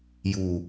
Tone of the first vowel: falling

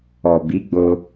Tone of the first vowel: low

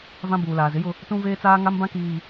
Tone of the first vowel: high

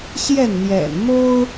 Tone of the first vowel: falling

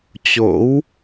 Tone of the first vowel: rising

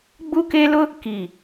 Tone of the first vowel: high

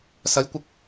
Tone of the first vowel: rising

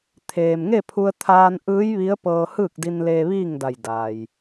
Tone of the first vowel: low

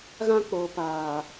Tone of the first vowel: high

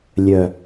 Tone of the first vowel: low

